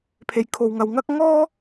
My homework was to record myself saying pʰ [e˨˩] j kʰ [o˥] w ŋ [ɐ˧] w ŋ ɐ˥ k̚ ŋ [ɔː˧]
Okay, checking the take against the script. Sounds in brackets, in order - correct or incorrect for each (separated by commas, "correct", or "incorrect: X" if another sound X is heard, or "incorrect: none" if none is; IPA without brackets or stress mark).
incorrect: e˧, incorrect: o˧, correct, incorrect: ɔː˥